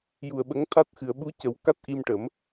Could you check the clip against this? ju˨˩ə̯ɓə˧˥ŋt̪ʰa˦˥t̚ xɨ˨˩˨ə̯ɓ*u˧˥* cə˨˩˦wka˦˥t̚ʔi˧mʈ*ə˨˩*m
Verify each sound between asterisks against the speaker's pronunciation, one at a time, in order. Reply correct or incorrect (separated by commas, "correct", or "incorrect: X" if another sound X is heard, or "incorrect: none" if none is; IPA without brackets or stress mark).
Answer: correct, incorrect: ə˨˩˦